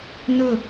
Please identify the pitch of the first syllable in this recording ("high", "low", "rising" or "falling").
falling